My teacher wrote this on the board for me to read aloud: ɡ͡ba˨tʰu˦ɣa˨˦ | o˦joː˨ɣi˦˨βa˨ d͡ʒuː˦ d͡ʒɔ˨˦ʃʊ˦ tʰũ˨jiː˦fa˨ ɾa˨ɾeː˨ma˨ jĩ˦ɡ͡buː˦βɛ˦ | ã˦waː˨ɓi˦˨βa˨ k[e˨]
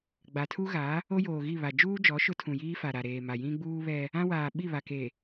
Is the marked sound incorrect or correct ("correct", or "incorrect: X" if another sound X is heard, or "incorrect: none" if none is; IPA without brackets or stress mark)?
correct